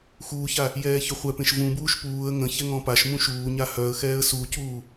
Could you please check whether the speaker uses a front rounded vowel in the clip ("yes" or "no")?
yes